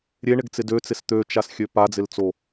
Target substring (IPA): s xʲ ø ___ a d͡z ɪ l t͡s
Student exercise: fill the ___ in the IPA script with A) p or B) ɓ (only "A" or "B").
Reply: A